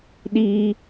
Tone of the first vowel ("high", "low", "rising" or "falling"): low